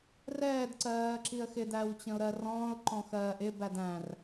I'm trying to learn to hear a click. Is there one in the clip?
yes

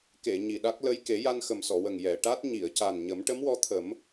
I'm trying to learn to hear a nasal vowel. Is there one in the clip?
no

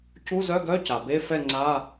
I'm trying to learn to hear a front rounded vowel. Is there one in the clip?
yes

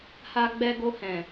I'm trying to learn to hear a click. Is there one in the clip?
no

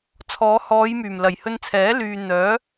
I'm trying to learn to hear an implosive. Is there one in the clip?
no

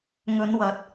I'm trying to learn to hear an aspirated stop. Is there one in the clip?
no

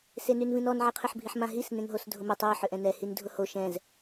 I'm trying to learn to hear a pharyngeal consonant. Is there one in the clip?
yes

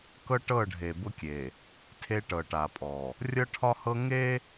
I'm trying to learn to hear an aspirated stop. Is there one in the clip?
yes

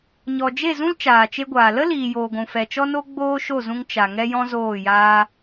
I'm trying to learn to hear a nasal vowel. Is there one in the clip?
yes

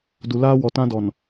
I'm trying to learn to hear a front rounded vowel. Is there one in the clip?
no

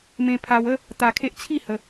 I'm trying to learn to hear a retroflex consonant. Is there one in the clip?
no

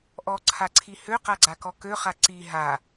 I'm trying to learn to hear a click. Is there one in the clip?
yes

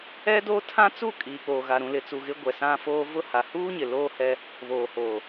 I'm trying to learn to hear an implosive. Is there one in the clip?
no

